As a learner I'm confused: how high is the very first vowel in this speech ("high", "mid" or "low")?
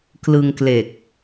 high